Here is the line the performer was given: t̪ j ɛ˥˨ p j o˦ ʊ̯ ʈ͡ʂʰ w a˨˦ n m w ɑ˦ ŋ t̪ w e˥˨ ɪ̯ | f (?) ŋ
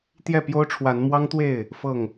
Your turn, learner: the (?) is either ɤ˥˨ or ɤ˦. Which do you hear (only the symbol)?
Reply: ɤ˥˨